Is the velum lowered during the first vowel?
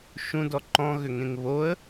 yes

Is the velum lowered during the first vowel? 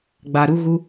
no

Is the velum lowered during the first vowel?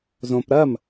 yes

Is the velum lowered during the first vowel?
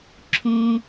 yes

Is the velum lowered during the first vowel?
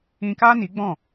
yes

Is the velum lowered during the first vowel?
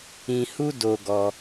yes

